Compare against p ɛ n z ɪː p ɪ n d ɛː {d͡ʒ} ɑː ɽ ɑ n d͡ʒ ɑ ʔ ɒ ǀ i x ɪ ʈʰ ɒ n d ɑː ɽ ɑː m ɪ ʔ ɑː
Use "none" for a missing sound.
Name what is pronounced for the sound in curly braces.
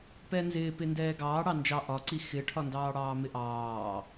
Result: ɡ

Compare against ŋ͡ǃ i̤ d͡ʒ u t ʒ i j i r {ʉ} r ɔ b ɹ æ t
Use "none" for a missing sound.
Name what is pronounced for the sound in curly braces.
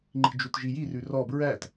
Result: ʉ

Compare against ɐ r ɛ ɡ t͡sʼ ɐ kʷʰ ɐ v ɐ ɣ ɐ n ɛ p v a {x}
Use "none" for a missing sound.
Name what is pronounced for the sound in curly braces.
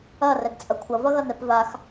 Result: x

